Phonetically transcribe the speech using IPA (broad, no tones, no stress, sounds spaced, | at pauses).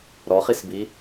ɾ ɔ χ i s b i